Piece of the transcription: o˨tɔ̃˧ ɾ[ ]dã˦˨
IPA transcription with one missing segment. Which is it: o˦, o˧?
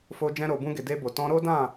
o˦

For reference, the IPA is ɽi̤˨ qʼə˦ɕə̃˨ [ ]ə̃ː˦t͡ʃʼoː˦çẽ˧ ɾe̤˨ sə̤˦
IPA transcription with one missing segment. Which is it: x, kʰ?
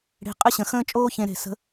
x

